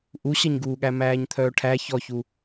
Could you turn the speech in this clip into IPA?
ʔ u ɕ ʌ ɲ ɡ uː ɠ æ m æː ɲ t̪ʰ œː ʈʰ æ ç ɔ ç u

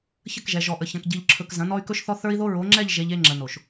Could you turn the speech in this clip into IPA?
ç ə˦˨ k ʒ ɛ˨ ʒ ɔ˨ ʔ ə˨ ç ɐ̃˨ k ɟ i˨ ʎ ǁʰ ɵ˨ k z ɐ̃˨˦ n ɔ˦ y̯ k ɵ˦ ʃ θ ɔ˦ θ ə˞˦ i̯ ð o˦ ɹ o˨˦ ŋ͡ǁ ɛ˦˨ ʎ ʒ e˨ ʎ e˨ ŋ͡ǁ ə˨ n o˨ ʃ

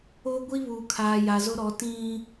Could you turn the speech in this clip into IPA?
oː˦ ɡʷ i˦ β uː˨ kʰ aː˨ j a˨ z ʊ˦ ɾ ɔ˨˦ t ĩ˦

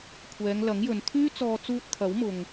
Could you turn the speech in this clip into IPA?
kʷʰ ɛː˨˧ ŋ l ɐ˨˥ ŋ j ɵ˨ n t̪ʰ yː˥ t͡s ɔː˧ t͡s uː˧ t̚ t̪ʰ ɐ˨˥ w m ʊ˨ ŋ

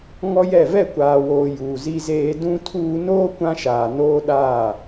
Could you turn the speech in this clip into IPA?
ŋ ɔ˦ j ɛ˦˨ v ɛ˦˨ kʷ aː˨ w oː˨ j uː˨ z i˦ z eː˦ d ũ˦ tʰ uː˦ n oː˦ kʷ ã˦ ʃ aː˨ n oː˦ ɗ aː˦˨

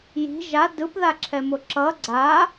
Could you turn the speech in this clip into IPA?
j i̤ ʒ a d ɯ p ð a ǁʰ ɛ m o ǁ ʌ ɡ͡ǀ a

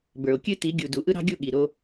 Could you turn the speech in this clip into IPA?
b ə˞˨ o̯ kʲ ɨ˦ t i˨˦ ɡʲ u˨ d u˨ ʔ ɯ˦ ɾ ɑ̤˦ ɡʲ u˦˨ ɠ i˨ ɾ o˦

